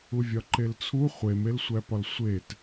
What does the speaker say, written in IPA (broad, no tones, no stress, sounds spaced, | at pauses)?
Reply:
u vʲ ɒ ǃ e l t͡sʰ u χʷ e m e l sʷ æ p ɒ l sʷ e t